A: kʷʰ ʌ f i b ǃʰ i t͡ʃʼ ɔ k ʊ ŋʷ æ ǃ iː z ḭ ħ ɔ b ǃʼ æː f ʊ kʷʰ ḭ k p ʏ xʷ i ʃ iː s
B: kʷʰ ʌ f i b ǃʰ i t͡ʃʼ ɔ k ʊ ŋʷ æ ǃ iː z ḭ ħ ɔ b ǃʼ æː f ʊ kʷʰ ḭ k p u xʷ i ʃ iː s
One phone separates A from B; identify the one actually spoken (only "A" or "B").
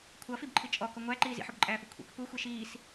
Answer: B